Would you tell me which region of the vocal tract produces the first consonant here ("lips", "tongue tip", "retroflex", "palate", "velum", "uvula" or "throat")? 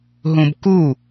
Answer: throat